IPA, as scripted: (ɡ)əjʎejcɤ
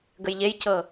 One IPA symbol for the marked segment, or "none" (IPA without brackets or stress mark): ɡ